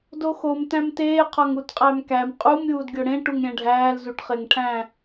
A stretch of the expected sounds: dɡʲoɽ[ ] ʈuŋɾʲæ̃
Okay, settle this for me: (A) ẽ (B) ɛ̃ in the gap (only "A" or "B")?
A